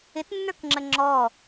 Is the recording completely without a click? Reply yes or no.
no